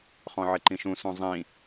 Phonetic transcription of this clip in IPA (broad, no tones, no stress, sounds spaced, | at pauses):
χ ɔ̃ ʕ ɪ ǃ ĩ ʃ ũ s ũ zˤ ĩ